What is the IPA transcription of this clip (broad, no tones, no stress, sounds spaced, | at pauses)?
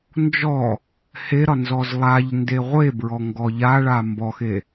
n d͡ʒ ɔ | h e ɾ ɒ n z ɔ z lˠ a ʎ n d e ʁʷ e b ɹ ɔ ŋ ɡ ɔ ʎ a ɭ a m b ɔ x e